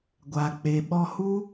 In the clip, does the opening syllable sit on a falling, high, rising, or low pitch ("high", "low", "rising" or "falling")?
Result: low